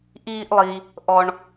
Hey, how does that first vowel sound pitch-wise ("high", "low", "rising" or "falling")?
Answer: high